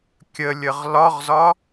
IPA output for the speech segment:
kʲ ə lʲ ə ʁ l ɒ ʁ z ɒ

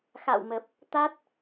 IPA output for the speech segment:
x a̰˧˨ w m ə˨˩ p̚ | t̪ a˦˥ t̚

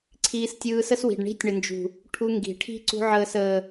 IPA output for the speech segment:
ǀʰ iː˧ s tʲ ɯː˧ s ə˦ s w i̤˨ ɖ ɳ i̤˧ tʲ ɳ ə˨ n d͡ʒ ṳ˨ | ʈʰ u˧ ŋ ɡ i̤˨ ʈʰ i̤˦ ǀ ṳ˧ ʕ əː˨ s əː˨

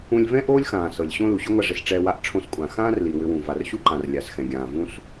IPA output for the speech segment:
ũ˧ lʲ v ɛ̃˥ ʔ oː˥ lʲ x ãː˩ s ɤ˩ lʲ ɕ õ˥ l u˩ ɕ ʏ˥ ŋʷ a˧ ʐ ɪ˩ s ʈ͡ʂ ɛː˧ w a˧ ʔ ʈ͡ʂʰ õ˧ s kʷʼ ã˩ x ãː˥ r l i˩ w ʏ˧ w ũ˩ v a˩ r ɕ u˥ ǃ ã˩ r lʲ a˩ s x ɛ̃˩ ɡʲ ãː˩ v ũ˥ s

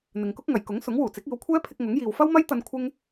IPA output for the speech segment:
n̪ ɪ˨ ŋ k ʊ˥ k̚ ŋ ɐ˨˩ j k ʊ˨˥ ŋ s ʊ˨˥ ŋ w uː˨˩ t͡s ɪ˨˥ k̚ iː˨˧ w kʷʰ ɛː˥ pʰ ɪ˧ k̚ ŋ ʊ˨˥ ŋ j iː˨ w f ɐ˥ w m ɐ˥ j t̪ ɐ˧ n kʷʰ ɪ˥ ŋ

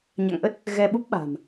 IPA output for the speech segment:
ɲ a̰˧˨ ŋ ʔ ə˦˥ t̚ | ɣ ɛ˧ ɓ u˦˥ p̚ ɓ a̤˨˩ m

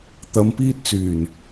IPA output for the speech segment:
t̪ ɐ˨˧ m p iː˧ t̚ t͡s yː˨˩ n

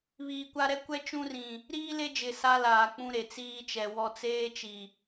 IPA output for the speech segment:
β iː˨ kʷ a˦ ɾ ɛ˦ kʷ ɛ˦ t͡ʃ ũ˦ r ĩ˨ | ɾ iː˦ l e˦ d͡ʒ ɪ˨ s a˦ l aː˨ k͡p ũ˦ ɾ e˨ t͡s iː˦ t͡ʃ ɛ˨ w ɔ˦ t͡s eː˦ t͡ʃ i˨

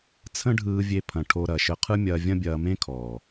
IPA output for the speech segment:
t͡sʰ ə̃˦ ɖʱ ɯː˧ vʲ e˧ pʰ ɐ̃˨ ʈʰ o˧ ɾ ɐ˨ ʃ ə˧ qʰ ɯ˦ mʲ ɐː˧ vʲ ɐ̃˦ bʲ ɐː˧ m ẽ˦ kʰ ɔː˨

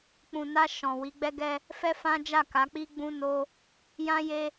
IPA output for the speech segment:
k͡p ũ˨ n a˧ ʃ ɔ̃˨ w i˨˦ ɡ͡b ɛ˦ ɡ ɛ˦ | f ɛ˦ f ã˦ d͡ʒ a˦˨ k a˨˦ k͡p i˦ ɡ͡b ũ˦ n o˦ | j ã˦ j e˦

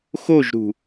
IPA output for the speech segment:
x o ʒ ɾ ṳ

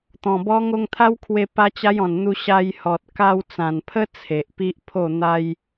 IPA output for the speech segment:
t̪ ɔ̃˨˩ b ɔ˦ ŋ o˧ ŋ t̪ʰ a˦ w kʰ w e˧ p a˦ t͡ɕ a˦ j ɔ̃˨˩ n n̪ u˧ ɕ a˧ j h ɔ˨ t̚ k a˧ w t͡s ã˨˩ n pʰ ə˦ t͡sʰ e˨ ʔ p i˦ ʔ pʰ o˥˧ n̪ a˦ j

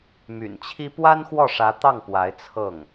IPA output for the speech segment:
m y̰˨˩ n t͡ɕʰ i˥ p w a˥ n x w ɔ˥˩ ʂ ä˧˥ t̪ ɑ˥˩ ŋ p w a˧˥ ɪ̯ t͡sʰ ɤ˥˩ ŋ

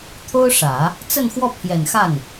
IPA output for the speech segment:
t̪ʰ o˥ ʊ̯ ʂ ä˨˩˦ | t͡s ə˥˧ n x w ɔ˥˩ pʰ j ɛ˨˩ n x a˥˩ n

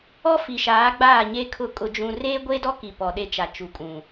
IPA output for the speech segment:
ɔ˦ f i˨ ʃ aː˨˦ ɡ͡b aː˦˨ ɲ e˦ kʰ ʊ˦˨ kʼ ʊ˦ d͡ʒ ũ˦ r eː˦ ɡʷ e˦ d ɔ˦ k i˨ p ɔ˨ ɗ e˦ t͡ʃ a˨ t͡ʃ u˨ kʼ ũ˨

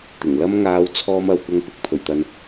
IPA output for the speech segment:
t̪ ɪ˨˩ ŋ l ɐ˥ m ŋ aː˧ w t͡sʰ ɔː˧ m ɐ˨ w kʷ ɐ˧ ŋ p ɪ˨ k̚ pʰ ɵ˨˩ ɥ t̪ ɐ˨ n

